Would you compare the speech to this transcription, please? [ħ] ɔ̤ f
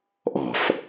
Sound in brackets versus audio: incorrect: ʔ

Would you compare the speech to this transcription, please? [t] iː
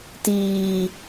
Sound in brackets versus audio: correct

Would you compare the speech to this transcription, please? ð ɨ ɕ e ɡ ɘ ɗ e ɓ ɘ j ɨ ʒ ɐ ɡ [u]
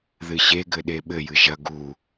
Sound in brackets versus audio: correct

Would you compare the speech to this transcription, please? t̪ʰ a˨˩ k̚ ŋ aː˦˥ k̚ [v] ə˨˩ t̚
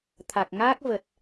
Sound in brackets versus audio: correct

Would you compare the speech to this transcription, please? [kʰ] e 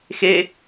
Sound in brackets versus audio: incorrect: x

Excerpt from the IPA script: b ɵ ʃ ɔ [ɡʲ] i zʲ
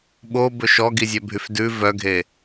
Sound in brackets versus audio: incorrect: ɡ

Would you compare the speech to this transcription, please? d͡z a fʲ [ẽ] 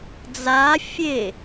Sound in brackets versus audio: incorrect: e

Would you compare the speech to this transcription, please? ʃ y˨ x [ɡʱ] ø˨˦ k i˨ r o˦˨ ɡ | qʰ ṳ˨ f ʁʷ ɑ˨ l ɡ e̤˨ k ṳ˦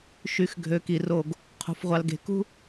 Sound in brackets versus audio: correct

